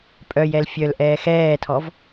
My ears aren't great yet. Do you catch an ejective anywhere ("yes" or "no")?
yes